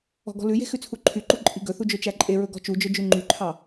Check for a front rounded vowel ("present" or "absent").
present